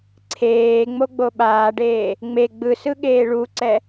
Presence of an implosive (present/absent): present